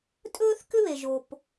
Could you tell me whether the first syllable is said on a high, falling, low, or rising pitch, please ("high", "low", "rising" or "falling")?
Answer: high